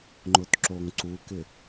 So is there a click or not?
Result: yes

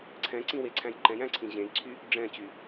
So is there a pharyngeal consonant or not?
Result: no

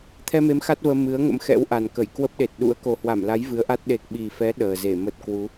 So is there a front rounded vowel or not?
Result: no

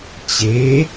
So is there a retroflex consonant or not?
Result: no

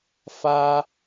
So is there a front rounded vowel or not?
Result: no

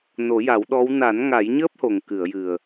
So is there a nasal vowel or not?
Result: no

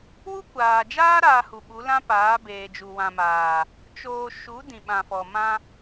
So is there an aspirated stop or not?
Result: no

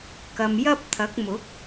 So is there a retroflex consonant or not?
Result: no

